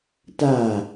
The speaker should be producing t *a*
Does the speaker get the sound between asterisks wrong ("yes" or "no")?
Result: no